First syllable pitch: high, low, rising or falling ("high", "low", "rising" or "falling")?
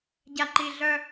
low